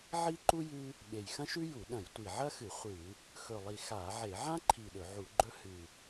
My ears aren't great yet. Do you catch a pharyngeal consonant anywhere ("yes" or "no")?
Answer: yes